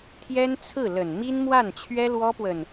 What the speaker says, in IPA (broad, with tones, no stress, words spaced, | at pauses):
t̪ʰjɛ˥nt͡sʰɹ̩˥˩lə˨˩n mi˥nmwa˥˩nt͡ɕʰɥɛ˥ lwɔ˥pwə˨n